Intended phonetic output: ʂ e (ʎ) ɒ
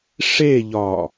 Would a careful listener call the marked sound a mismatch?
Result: no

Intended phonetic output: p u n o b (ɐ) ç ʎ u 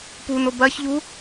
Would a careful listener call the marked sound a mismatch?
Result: no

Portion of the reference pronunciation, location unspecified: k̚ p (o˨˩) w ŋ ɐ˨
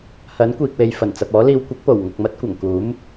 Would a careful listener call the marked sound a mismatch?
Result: no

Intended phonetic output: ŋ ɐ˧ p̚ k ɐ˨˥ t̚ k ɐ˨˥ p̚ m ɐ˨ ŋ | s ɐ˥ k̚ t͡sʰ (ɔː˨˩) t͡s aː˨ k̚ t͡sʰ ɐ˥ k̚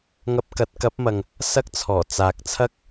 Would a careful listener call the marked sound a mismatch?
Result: no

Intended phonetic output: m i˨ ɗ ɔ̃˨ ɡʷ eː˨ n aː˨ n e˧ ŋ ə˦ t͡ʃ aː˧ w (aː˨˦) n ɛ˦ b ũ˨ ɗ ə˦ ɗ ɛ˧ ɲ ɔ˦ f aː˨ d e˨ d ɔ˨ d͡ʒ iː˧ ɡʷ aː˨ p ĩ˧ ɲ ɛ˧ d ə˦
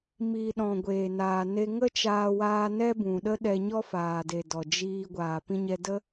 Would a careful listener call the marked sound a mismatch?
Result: yes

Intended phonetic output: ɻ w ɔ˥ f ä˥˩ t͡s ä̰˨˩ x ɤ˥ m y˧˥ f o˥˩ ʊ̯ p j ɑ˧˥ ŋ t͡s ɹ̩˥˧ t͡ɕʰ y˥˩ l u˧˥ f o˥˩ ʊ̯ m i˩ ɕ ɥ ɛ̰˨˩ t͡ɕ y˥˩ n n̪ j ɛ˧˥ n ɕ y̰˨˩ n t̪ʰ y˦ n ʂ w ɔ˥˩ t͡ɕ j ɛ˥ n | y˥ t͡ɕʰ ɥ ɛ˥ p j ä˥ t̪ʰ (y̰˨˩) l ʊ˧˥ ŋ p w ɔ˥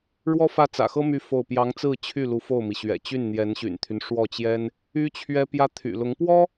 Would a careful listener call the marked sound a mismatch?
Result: no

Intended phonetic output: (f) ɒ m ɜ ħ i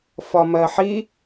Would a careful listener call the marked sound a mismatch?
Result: no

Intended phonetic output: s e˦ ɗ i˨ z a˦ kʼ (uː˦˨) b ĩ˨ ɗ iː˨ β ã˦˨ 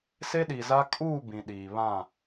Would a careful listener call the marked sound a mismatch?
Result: no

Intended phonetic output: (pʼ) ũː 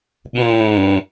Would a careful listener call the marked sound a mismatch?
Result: yes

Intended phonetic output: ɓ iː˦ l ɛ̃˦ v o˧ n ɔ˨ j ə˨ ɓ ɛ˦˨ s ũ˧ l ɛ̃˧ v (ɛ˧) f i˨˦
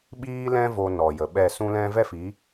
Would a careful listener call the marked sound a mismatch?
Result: yes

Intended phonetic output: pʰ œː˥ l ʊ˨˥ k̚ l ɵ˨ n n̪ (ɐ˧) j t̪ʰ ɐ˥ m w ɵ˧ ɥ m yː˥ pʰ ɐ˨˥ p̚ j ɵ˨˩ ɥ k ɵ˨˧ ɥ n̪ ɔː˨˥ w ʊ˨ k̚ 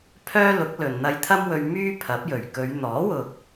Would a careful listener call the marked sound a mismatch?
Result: no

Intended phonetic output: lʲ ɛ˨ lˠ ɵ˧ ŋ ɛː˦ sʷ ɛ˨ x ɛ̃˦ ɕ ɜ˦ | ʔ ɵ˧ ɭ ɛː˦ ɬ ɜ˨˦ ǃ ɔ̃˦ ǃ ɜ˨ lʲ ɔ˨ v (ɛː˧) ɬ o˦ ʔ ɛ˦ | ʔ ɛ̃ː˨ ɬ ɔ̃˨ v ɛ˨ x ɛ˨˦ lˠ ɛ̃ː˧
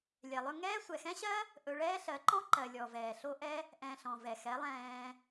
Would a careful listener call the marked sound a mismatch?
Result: yes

